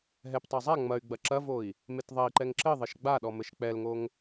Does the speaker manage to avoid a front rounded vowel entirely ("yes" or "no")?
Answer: no